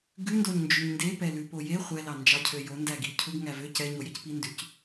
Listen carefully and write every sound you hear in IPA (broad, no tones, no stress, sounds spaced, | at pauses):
ɡ ʉ n d o ɲ n d͡ʒ y ɲ n d e p ɛ l ʉ p o j e χʷ ɛ l ɑ n d͡ʒ ɑ cʰ ø j o n d æ ɡ i cʰ u ɡ ŋ æ v ø c ɛ ɲ o j e c p i n d ʉ c